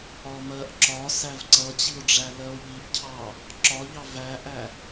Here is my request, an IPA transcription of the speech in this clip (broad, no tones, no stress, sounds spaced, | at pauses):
ɒ m ɜ ʔ ǁ ɒ s æ v ǀ ʌ t͡ɕ i o̯ ɖ͡ʐ æ l ɜ o̯ ʎ i ʔ cʰ ɑ | ǁ ɒ ʎ ɑ v æ ʔ æ